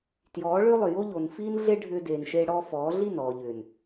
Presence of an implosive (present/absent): absent